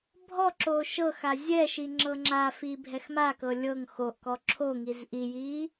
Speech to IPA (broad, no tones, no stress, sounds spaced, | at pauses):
bʱ ɔ ǁ oː ʃ ɤ x a zʲ ɛ ʃ i ŋ͡ǁ ɤ ŋ͡ǁ a f i bʱ ɛ x m a k ɤ lʲ ɤ ŋ x o ʔ k ɔ ǁʰ o ŋ i z ʔ i j iː